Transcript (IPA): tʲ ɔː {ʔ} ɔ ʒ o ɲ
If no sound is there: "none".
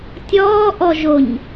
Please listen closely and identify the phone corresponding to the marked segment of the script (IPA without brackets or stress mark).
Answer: ʔ